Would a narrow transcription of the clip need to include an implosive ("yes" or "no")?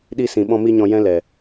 yes